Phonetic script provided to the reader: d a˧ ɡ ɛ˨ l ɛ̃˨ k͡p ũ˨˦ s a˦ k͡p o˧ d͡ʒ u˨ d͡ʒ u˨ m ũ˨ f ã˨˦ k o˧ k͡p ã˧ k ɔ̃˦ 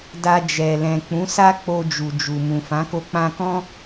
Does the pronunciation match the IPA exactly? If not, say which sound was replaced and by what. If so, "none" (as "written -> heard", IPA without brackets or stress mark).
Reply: ɡ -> d͡ʒ